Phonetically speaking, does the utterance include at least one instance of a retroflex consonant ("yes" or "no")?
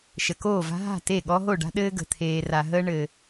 yes